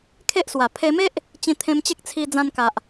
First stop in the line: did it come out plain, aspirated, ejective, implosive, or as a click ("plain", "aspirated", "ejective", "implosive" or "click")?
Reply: aspirated